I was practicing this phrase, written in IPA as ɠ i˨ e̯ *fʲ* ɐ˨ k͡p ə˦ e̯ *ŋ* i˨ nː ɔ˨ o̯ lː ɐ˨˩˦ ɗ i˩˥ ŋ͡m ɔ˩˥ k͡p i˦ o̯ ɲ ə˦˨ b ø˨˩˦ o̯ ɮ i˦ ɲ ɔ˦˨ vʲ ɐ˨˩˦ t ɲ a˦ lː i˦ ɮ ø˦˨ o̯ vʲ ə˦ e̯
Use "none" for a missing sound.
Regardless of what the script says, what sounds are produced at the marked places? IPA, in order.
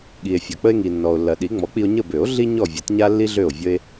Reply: fʲ, ŋ

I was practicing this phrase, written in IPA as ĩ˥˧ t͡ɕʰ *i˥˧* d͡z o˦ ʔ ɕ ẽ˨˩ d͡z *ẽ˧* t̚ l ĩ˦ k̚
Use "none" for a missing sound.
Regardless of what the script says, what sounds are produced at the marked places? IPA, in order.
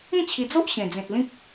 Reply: i˧, ẽ˨

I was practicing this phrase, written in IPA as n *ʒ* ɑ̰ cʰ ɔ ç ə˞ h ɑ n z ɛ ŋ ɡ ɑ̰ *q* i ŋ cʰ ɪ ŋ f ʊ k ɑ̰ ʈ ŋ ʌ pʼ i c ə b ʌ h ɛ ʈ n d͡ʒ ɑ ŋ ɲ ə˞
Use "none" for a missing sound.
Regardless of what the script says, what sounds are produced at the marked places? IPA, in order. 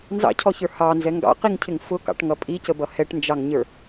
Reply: z, q

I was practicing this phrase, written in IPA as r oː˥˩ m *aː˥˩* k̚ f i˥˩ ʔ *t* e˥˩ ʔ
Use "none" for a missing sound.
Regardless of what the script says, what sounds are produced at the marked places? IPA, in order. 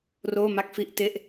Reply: a˥˩, t

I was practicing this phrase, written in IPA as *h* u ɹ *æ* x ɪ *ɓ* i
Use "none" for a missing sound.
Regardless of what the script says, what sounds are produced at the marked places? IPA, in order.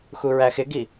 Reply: x, æ, ɡ

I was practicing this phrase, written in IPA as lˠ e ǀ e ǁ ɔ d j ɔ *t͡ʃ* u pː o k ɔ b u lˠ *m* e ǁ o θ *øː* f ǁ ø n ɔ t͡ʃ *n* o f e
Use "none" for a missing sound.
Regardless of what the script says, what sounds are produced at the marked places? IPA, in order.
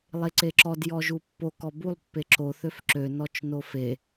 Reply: ʒ, pː, ø, n

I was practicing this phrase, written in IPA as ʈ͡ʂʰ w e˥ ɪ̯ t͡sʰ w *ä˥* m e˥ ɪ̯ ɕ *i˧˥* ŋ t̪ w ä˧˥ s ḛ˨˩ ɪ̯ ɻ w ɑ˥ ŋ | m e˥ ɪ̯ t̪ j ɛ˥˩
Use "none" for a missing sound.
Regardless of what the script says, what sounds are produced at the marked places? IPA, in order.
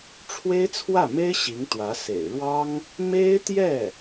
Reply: ä˥˩, i˧˥

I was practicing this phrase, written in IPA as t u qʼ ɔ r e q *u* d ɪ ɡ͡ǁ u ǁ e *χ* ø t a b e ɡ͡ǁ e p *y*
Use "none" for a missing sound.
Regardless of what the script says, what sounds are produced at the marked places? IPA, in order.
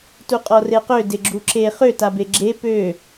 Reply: ø, χ, ø

